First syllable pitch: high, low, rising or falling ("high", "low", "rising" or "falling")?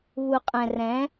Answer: low